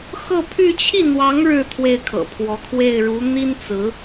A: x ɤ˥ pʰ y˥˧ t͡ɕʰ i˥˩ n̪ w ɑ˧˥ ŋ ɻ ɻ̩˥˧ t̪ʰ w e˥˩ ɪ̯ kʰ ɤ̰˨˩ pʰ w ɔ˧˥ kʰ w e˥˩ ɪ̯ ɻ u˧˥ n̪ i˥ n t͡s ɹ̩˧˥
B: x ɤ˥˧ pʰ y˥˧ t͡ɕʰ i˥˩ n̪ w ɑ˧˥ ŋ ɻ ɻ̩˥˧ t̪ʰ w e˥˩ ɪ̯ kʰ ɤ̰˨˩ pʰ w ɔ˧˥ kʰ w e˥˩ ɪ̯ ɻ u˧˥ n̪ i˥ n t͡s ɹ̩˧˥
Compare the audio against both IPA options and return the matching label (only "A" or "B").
B